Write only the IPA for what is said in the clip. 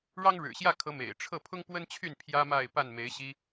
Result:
ɻ ɑ˦ ŋ ɻ ɻ̩˨˩ ɕ j ä˥˨ kʰ ɤ˨˦ m ḛ˨˩ ɪ̯ ʈ͡ʂʰ ɤ˥˨ pʰ ʊ˦ ŋ p w ə˦ n t͡ɕʰ y˥˨ n pʰ j ä˦ m a˥˨ ɪ̯ p a˥˨ n m e˨˦ ɪ̯ ɕ i˦

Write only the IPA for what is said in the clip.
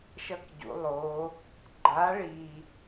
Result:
ʃ ʌ˧ k ɟ ṵ˩˧ lˠ o˩˧ | ɡ͡ǃ a˨˥ ɭ i˨˩

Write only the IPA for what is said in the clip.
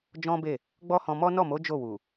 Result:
d͡ʒ ɔ̃˦ b e˦˨ | ɡ͡b ɔ˦ h ɔ̃˧ m ɔ˦ n ɔ˦˨ m o˨˦ d͡ʒ o˦˨ w u˨

